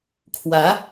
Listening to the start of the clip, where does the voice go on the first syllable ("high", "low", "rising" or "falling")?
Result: rising